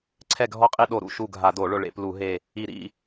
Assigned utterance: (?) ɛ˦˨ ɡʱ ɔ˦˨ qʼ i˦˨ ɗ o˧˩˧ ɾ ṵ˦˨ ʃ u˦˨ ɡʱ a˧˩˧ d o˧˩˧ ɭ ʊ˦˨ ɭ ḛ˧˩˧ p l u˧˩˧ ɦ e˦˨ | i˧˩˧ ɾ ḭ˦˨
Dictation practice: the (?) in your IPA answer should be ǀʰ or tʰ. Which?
ǀʰ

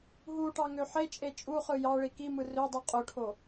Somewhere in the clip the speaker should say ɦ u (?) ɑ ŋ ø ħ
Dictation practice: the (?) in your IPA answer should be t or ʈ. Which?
ʈ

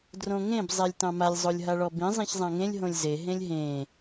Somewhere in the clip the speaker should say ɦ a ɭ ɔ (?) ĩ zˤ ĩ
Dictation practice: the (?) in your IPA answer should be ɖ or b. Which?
b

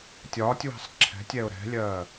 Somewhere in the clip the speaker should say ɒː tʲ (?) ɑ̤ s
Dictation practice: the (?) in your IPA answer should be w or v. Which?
w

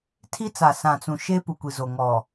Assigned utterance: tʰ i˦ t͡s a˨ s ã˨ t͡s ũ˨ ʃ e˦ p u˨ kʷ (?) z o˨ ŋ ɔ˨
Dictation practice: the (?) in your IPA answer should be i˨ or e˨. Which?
i˨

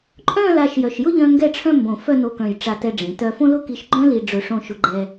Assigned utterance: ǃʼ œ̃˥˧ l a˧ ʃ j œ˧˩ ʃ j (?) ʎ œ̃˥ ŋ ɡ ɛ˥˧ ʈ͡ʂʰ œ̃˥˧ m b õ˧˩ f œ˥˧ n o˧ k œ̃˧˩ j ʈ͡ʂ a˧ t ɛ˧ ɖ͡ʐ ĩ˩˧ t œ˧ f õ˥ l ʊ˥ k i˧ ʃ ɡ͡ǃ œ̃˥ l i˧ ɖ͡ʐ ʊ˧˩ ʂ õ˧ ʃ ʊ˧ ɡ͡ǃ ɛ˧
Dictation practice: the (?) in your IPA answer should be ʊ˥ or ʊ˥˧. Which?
ʊ˥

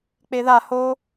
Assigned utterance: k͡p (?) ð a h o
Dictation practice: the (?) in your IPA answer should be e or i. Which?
e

